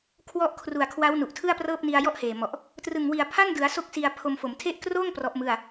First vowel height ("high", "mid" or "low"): mid